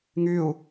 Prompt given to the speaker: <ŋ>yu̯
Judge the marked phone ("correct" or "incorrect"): correct